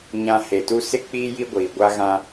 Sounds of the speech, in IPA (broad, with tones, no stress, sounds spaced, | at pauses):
ɲ ã˨ h e˨ t u˦ s ɪ˦ k͡p iː˦ j i˦ ɡʷ iː˨ ɡʷ a˦ ɣ ã˦